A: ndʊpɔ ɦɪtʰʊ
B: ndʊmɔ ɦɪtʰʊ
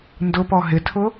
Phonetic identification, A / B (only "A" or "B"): A